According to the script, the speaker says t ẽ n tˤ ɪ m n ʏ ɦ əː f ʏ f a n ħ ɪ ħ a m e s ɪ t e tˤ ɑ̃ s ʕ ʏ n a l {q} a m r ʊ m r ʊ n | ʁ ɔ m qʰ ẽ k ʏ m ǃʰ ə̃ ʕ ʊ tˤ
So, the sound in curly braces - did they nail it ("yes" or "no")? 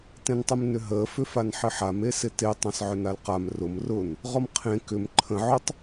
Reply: yes